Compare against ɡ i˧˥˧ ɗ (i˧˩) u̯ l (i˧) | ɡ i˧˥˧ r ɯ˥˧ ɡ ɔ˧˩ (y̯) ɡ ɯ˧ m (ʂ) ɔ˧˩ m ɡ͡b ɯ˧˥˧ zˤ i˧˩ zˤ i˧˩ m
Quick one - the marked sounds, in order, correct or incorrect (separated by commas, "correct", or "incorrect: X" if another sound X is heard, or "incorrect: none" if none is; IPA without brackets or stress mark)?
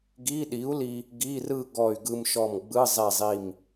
incorrect: i˨˥, correct, correct, incorrect: ʃ